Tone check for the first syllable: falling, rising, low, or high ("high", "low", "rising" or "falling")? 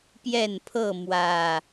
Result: falling